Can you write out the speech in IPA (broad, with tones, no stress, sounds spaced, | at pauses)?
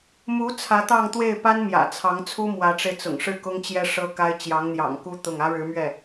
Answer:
m u˧˥ t͡sʰ ä˧˥ t̪ ɑ˥˧ ŋ t̪ w e˥˩ ɪ̯ p a˥ n m j ä̰˨˩ t͡sʰ ɑ˧˥ ŋ t͡sʰ u˥ m w ä˧˥ ʈ͡ʂ e˧ ɪ̯ t͡s ʊ̰˨˩ ŋ ʂ ɻ̩˥˩ k ʊ˥ ŋ t͡ɕ j ɛ˥ ʂ ɤ˥ k a˥ ɪ̯ t͡ɕ j ɑ˧˥ ŋ n̪ j ɑ̰˨˩ ŋ k u˥ t̪ ʊ˥˩ ŋ ä˥ ɻ ɻ̩˧˥ m ɥ ɛ˥˩